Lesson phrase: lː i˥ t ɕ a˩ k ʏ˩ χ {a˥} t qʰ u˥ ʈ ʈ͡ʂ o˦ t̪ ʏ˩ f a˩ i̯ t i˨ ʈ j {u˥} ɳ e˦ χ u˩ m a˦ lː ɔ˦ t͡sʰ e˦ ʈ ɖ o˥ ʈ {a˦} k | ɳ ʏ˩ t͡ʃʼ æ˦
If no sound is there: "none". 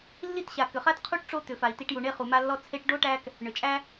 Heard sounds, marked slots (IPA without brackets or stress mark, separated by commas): a˥, u˩, æ˦